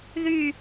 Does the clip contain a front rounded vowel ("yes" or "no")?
yes